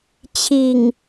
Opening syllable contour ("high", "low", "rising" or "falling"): low